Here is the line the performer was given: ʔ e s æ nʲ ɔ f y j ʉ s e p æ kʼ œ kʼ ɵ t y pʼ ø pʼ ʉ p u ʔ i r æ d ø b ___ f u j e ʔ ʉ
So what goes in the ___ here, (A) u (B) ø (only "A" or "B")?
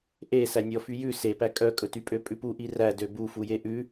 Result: A